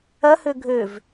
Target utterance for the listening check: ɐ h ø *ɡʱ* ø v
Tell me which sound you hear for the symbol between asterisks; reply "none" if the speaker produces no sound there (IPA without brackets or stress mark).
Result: ɡʱ